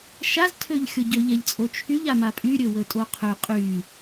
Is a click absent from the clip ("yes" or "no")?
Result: yes